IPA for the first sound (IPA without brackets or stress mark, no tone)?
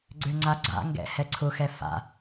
ɡ͡ǀ